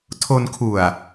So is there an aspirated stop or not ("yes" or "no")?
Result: yes